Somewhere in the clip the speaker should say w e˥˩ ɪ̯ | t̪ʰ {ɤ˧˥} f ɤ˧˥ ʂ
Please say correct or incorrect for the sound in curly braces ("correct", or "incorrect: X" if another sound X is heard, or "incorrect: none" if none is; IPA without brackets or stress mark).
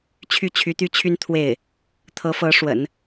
correct